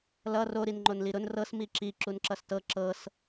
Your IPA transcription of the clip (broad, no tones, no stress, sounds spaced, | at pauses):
l ʌ r o ɾ i n ŋ͡ǃ o n l i ɾ ʊ n r ɤ s m i ǁ i ǁ u n ǁ ʌ s t ɤ ǁ ɤ s